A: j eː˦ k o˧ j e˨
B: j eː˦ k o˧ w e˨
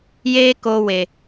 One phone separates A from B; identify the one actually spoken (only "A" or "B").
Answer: B